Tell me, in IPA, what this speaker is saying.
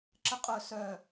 ǁ ə qʼ œ s œ

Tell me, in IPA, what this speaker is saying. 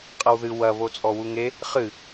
qʼ ɐ w ð ɨ w ɐ β o t͡sʼ ɔ w u ŋ e | χ ɨ

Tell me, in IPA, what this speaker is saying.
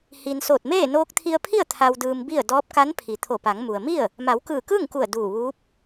h i˩ n s oː˧˩ t̚ m eː˥˨ n oː˧ k̚ t̪ʰ i˧ ə̯ pʰ i˥˨ ə̯ t̪ʰ a˧ w d ɯː˧ m b i˥˨ ə̯ d ɔː˧˥ p̚ k a˧˥ n pʰ i˩ t̪ʰ o˧˩ p a˩˧ ŋ m u˩ ə̯ m i˥˨ ə̯ | m a˩˧ w k ɯː˧˩ k ɯː˥˨ ŋ k u˧˩ ə̯ d uː˧˩ ʋ uː˧˥ p̚

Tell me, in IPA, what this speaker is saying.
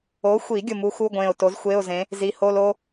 o˨˥ xʷ i˨˩˦ ɡʲ ʊ˧˩ m u˨˥ x u˧˥˧ ɡʷ ẽ˧˩ ʊ̯ t o˨˥ z xʷ e˧˥˧ ʊ̯ z ẽ˨˥ | z i˨˥ h o˧˥˧ l o˥

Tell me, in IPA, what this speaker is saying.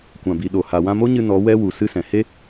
kʷ ã˨ b i˨ ɗ o˨ h a˨ w ã˧ m o˦ ɲ ɨ˧ n ɔ˨˦ w ɛ˦ w u˨ s ɨ˦ s ɛ̃˨ h e˦

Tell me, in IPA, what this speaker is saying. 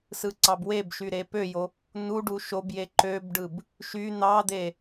s ɯ ǀ ɑ b w e b ʃ y ɾ e p ø j o | n u ɖ u ʃ o b j e ǃ ø b ɖ ɯ b | ʃ y n̪ ɑ d̪ e

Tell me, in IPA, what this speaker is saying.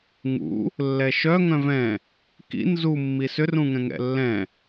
ŋ ṵ | lː ɛ ʃ œ ŋ œ̃ v ɛ̃ | k ḭ n z u mː i s ʏ r ũ ŋ ɛ̃ ŋ ɛ̰ lː ɛ̃

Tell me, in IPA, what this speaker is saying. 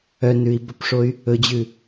œ n ʉ i̯ b ɵ p ʂ o y̯ | ɵ d͡ʑ ʉ

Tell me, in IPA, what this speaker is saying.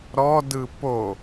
ɾ ɔ d ɯ p o

